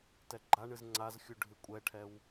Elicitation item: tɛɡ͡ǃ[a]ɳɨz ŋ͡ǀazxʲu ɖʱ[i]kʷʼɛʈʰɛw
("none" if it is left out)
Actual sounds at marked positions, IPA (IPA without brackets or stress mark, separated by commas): a, ɨ